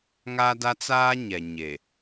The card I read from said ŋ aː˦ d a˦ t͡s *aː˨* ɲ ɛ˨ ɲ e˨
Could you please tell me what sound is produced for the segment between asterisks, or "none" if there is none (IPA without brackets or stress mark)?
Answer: aː˦